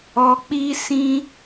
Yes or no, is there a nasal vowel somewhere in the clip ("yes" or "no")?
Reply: yes